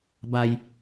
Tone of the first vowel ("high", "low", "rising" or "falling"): low